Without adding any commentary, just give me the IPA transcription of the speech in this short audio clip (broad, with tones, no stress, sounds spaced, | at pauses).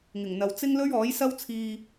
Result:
ŋ ɪ˨˩ ŋ n̪ ɐ˨˧ w t͡s ɪ˥ ŋ l ɵ˥ ɥ ɔː˨˥ j s ɐ˥ w t͡sʰ iː˧